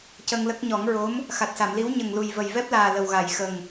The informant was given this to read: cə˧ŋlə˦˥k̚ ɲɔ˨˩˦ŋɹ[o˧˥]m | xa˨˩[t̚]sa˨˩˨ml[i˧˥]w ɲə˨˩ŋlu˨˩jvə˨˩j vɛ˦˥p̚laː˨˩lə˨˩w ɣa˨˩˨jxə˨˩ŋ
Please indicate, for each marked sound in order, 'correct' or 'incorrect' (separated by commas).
correct, correct, correct